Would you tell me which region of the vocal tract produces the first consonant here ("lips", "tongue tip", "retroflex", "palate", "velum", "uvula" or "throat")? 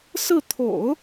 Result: tongue tip